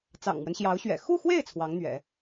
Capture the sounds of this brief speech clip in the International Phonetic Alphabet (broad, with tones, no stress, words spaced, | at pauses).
t͡sɑ̰˨˩ŋmwə˦nɕjɑ˧˥ʊ̯ ɕɥɛ̰˨˩ xu˥˧xwe˥˩ɪ̯ t͡sʰwɑ˧˥ŋn̪ɥɛ̰˨˩˦